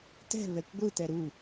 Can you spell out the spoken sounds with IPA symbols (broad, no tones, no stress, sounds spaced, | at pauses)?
t ɛ̤ β ɛ kʷ ɡʷ ɯ t ɛ ɾ u